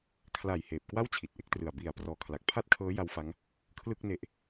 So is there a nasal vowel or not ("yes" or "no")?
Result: no